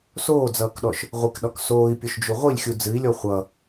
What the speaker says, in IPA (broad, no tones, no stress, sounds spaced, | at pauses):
s oː d͡z ʌː k ɗ ɔ ʃ | ʁʷ i k ɗ ɒ k s oː i̯ pʲ o ʃ d͡ʒ u ʁʷ i lʲ xʲ u d͡z ɨ i̯ lʲ ɔ χʷ ʌ